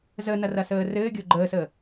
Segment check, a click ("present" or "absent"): present